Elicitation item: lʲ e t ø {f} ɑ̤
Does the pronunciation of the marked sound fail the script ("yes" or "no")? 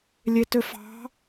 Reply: no